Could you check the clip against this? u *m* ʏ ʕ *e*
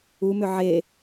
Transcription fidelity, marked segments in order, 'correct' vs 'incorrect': correct, correct

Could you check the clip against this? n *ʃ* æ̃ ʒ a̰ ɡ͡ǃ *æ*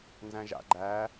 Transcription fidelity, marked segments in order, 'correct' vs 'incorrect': incorrect: z, correct

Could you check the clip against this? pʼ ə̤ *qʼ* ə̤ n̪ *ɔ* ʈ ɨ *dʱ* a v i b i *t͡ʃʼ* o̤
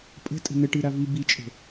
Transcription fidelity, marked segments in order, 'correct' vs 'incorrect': incorrect: tʼ, incorrect: ə, incorrect: ɾ, correct

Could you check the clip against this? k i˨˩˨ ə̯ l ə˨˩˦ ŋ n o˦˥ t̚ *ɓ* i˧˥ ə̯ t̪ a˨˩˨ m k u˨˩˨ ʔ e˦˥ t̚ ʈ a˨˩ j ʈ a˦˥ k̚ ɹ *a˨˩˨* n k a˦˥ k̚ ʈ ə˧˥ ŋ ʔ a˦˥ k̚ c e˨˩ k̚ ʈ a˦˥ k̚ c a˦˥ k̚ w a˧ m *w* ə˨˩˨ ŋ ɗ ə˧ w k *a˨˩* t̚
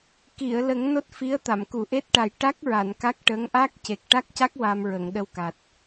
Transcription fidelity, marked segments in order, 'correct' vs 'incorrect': incorrect: f, correct, incorrect: ɹ, correct

